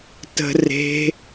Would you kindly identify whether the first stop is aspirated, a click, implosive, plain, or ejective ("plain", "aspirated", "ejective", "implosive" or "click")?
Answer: plain